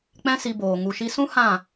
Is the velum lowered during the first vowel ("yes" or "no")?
yes